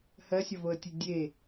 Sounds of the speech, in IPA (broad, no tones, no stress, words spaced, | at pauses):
hɜsʲɒvoə̯tʲe dʲe